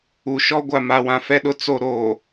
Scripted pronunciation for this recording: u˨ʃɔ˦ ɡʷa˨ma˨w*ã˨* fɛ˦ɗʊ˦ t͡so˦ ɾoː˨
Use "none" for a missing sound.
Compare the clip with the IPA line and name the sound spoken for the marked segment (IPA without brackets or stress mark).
ã˨